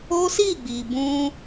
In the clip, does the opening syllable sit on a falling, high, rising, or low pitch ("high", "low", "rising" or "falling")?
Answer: high